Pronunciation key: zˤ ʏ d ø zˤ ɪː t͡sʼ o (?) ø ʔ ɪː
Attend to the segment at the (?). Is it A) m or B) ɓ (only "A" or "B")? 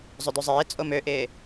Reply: A